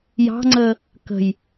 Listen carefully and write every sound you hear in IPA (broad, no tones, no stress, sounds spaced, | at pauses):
j ɑ̤ ŋ͡ǀ əː | k ə̤ j